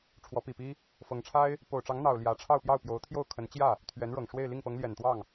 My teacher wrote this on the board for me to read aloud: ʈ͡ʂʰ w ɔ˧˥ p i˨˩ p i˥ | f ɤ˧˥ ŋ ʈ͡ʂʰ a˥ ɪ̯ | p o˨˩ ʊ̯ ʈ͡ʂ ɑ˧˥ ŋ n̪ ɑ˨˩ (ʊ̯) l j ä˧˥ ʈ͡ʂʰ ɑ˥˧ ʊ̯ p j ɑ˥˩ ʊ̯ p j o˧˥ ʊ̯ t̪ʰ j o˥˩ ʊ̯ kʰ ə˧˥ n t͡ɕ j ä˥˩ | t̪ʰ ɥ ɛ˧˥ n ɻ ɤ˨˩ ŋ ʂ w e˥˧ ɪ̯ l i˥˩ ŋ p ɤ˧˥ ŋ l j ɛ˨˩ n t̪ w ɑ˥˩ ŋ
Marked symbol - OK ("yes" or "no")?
yes